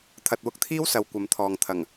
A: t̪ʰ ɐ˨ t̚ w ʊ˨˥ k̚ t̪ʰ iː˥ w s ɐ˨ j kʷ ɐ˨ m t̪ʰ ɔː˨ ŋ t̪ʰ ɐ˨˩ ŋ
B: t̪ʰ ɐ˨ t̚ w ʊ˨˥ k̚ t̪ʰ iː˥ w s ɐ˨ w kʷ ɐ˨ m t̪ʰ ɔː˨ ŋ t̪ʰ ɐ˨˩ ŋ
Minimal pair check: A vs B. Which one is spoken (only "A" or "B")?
B